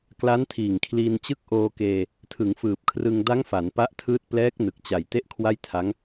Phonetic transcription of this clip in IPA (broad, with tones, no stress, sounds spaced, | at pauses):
k l a˦˥ n tʰ iː˨˩ ŋ kʰ l iː˧ n t͡ɕ ɯ˥˩ k̚ ʔ oː˧ k eː˧ | tʰ ɯ˩˦ ŋ f ɯː˨˩ p̚ kʰ r ɯ˧ ŋ d a˦˥ ŋ f a˩˦ n p a˦˥ ʔ tʰ ɯː˦˥ t̚ p l ɛː˦˥ k̚ n ɯ˨˩ k̚ t͡ɕ a˨˩ j t e˥˩ ʔ kʰ w a˥˩ j tʰ a˦˥ ŋ